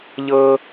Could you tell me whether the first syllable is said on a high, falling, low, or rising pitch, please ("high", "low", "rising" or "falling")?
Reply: high